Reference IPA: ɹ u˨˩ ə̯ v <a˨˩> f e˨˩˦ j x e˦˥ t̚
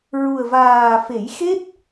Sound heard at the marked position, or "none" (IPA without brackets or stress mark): aː˨˩